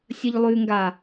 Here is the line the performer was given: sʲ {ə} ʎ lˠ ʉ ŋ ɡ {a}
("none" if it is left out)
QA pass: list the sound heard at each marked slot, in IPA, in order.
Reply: ə, a

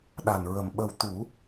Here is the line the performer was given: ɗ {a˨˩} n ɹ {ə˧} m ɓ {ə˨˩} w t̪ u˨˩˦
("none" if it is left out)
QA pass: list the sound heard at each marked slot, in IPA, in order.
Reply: a˨˩, ə˨˩, ə˨˩

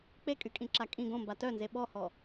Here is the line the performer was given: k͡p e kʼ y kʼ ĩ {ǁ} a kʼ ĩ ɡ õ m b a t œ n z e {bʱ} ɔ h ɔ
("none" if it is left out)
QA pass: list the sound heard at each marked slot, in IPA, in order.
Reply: ǁ, ɓ

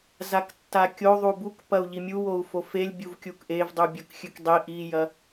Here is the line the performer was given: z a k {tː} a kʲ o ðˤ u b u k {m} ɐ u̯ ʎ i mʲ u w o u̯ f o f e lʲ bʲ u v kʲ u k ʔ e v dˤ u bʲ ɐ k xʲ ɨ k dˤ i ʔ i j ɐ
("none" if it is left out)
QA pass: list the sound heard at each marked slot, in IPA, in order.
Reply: tː, p

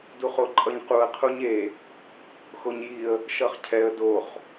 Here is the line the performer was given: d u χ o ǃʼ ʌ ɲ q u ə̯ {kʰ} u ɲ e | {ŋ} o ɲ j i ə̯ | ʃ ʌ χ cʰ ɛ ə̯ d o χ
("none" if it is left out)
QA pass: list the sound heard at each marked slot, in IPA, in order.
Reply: qʰ, x

